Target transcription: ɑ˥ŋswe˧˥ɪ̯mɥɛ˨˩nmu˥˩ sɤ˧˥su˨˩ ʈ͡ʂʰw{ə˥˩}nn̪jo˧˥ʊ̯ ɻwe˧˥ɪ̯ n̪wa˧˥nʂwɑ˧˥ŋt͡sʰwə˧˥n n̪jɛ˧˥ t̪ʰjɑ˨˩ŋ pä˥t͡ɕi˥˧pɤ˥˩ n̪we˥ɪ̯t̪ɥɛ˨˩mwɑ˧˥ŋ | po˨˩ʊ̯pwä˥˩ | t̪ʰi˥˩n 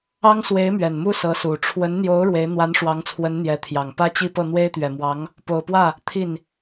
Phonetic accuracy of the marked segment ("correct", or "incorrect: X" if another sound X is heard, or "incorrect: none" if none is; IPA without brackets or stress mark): incorrect: ə˧˥